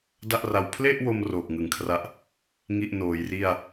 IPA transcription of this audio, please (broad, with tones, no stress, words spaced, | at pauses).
da˥˩ʔra˧w pʰle˥˩ʔwo˧m roː˨˩k̚ŋɯ˩˦ŋkʰra˦˥ʔ | ŋi˥˩ʔnoː˩˦jri˥˩a̯